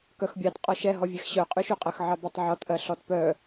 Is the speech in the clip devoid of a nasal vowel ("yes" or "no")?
yes